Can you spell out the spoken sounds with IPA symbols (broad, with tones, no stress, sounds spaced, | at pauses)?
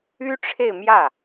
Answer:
y˥ ʈ͡ʂʰ e˥˧ ɪ̯ m j ä˥˩